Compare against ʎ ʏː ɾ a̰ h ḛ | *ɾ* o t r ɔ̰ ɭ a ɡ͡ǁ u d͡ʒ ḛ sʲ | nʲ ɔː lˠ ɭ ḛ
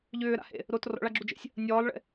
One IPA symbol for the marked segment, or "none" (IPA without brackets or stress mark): ɾ